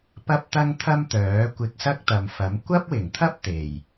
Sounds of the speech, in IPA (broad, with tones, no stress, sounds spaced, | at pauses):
p ɐ˥ p̚ t̪ ɐ˥ ŋ t̪ʰ ɐ˥ m t̪ œː˨˥ kʷ ɪ˧ k̚ s ɐ˥ k̚ t̪ ɐ˨ m f ɐ˨˥ m kʷ ɐ˥ p̚ w ɪ˨˩ ŋ t̪ʰ ɐ˥ p̚ t̪ e˨˩ j